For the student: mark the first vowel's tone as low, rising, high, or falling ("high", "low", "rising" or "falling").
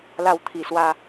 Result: falling